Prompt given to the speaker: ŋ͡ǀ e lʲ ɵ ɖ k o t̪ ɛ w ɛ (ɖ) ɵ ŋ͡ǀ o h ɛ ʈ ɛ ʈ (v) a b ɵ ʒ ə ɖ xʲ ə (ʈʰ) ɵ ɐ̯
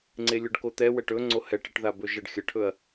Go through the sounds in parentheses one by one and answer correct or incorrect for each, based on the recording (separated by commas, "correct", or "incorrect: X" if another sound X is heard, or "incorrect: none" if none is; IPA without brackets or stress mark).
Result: incorrect: ʈ, incorrect: ð, correct